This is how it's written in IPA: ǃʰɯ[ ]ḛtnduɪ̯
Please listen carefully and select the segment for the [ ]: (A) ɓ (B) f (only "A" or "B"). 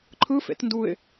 B